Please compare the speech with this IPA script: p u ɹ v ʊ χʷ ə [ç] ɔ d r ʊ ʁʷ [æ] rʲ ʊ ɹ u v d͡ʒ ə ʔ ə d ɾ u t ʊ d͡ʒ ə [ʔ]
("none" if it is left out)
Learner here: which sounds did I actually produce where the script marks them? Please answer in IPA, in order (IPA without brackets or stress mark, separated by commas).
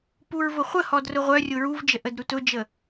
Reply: h, œ, none